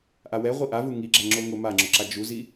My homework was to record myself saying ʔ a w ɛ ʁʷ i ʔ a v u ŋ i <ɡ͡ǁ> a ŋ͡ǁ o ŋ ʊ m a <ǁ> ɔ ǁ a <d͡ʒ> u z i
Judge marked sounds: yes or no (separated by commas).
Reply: yes, no, yes